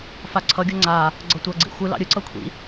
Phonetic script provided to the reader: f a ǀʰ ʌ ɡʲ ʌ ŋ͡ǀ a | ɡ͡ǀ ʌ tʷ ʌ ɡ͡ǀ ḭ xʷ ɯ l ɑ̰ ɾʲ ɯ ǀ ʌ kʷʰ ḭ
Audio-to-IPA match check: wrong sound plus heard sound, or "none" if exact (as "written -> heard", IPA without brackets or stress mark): none